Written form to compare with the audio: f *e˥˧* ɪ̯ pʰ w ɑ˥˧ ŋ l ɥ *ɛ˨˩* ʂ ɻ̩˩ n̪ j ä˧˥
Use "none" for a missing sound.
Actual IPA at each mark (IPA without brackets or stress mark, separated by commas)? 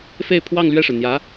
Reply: e˥˧, ɛ˥˩